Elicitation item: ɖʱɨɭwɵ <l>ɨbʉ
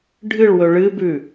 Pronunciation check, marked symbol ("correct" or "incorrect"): incorrect